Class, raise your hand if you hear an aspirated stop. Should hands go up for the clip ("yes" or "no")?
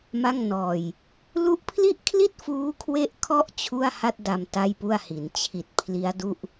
yes